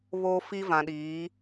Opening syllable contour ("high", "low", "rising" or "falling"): high